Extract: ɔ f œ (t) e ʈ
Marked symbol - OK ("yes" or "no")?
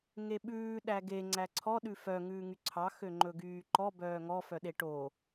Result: no